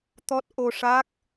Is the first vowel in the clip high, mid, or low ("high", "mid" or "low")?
mid